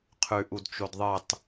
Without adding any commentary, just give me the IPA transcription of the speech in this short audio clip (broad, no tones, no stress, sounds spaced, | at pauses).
qʰ ʉ ʔ u d t͡ʃ o d ðˤ ɨ tˤ